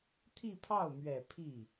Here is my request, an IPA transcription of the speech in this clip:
t̪ʰi˥˧pʰɑ˥˩ʊ̯mɥɛ˨˩ pʰi˥˩

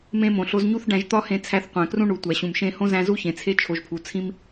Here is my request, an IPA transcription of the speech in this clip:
mẽ˦mõ˨ ɬo˧zɲu˦θɖæ̃˧ʒt̪ɒ˦ hẽ˧t͡sʰæ˧θqʷæ̃˨krũ˦ ɳu˨tʷæ˨ɕũ˨m ʃẽ˦ hõ˦zæ̃˧zu˦ çẽ˨t͡sʰe˦t͡ʃʰo˨ʒpʰu˨ t͡sʰĩ˦m

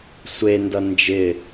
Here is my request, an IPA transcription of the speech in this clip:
sʷendʌ nd͡ʒɪ

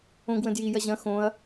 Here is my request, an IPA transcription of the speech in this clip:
õɡwə̃dji jɐʑɐ̃ xõɐ̯

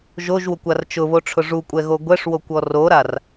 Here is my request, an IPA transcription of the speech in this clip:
ʒoʒwʊkʷar t͡ʃʊβoʈ͡ʂʰʊ ʐukʷʼɛɣo ɡʷɛʂwokʷɔ roɾar

